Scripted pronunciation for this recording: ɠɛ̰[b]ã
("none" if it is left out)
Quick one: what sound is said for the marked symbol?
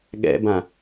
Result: b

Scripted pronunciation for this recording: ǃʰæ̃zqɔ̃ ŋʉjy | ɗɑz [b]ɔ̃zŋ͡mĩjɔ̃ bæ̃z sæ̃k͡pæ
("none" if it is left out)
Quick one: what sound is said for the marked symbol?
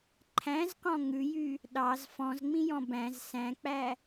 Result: f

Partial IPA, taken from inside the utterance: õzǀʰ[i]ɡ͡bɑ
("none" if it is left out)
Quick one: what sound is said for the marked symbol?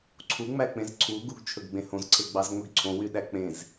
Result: e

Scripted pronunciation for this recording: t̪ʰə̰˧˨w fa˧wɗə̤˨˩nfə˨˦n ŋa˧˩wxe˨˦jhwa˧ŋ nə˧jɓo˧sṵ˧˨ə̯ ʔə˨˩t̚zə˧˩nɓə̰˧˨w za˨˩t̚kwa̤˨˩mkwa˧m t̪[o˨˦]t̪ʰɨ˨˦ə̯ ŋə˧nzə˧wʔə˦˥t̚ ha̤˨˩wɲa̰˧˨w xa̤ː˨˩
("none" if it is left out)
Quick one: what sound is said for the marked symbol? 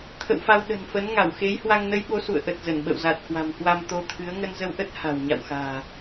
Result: o˨˦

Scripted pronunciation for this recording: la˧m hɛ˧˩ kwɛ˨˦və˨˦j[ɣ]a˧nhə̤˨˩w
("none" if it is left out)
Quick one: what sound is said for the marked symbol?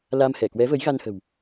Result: ɣ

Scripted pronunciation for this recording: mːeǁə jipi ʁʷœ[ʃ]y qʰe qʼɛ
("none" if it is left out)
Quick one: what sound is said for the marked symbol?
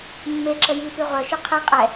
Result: ʃ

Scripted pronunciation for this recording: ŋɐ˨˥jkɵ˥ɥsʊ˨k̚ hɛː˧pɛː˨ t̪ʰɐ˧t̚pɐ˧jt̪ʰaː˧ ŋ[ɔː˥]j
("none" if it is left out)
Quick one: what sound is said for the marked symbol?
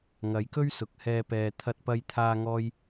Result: ɔː˥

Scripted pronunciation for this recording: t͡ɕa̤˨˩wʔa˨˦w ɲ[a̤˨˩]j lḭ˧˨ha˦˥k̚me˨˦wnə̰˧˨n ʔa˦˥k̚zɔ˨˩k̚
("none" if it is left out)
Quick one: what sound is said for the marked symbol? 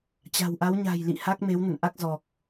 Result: a̤˨˩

